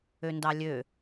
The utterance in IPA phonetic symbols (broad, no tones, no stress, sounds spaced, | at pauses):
ø n d ɑ lʲ ø